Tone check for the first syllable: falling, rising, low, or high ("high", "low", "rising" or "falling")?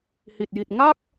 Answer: low